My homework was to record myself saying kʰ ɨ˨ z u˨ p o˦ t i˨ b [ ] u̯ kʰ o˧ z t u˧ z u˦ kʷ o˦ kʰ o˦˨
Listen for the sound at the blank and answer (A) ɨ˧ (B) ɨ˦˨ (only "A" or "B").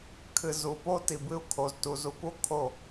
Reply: A